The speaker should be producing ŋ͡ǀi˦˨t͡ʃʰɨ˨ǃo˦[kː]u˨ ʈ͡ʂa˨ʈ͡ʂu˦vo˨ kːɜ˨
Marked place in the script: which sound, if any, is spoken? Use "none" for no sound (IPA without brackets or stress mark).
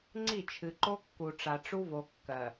kː